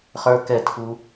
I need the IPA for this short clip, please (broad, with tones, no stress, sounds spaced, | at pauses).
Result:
χ ə˞˦ k ɛ˦˨ tʰ u˦